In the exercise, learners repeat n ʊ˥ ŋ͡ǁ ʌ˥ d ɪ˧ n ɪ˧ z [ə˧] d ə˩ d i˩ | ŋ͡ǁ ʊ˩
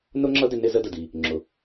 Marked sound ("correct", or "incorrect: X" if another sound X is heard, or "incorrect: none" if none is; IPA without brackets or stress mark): correct